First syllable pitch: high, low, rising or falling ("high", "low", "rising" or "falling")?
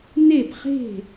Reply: falling